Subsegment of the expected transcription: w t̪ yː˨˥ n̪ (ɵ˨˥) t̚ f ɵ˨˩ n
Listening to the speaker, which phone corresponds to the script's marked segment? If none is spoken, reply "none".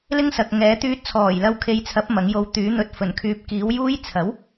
ɵ˧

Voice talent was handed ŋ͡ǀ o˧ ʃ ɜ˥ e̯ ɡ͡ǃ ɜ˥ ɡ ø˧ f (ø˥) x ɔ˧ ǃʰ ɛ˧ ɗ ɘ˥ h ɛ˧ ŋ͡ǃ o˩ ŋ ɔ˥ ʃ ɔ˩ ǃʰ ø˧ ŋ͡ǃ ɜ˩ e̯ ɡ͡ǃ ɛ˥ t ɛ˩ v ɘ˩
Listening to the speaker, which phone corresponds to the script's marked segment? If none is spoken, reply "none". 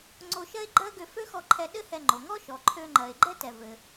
ø˥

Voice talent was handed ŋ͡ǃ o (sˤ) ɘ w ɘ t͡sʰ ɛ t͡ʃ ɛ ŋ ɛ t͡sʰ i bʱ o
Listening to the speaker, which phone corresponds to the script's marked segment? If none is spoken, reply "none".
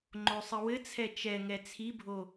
sˤ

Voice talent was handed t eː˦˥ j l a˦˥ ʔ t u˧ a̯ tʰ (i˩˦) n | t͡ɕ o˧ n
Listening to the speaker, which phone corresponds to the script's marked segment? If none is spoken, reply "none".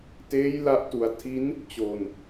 i˦˥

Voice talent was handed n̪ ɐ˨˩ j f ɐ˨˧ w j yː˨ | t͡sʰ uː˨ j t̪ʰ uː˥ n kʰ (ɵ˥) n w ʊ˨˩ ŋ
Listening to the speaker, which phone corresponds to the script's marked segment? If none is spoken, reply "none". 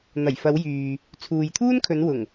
ɵ˨˧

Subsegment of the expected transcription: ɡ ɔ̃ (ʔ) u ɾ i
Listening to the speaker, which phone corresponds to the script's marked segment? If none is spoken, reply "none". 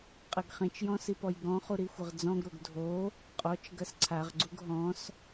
χ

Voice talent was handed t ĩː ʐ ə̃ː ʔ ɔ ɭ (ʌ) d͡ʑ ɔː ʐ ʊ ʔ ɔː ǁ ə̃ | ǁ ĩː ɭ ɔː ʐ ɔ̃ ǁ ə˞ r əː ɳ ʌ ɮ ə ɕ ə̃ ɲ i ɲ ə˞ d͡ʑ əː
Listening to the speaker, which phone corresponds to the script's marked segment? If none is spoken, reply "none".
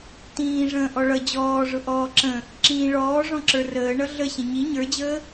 ʌ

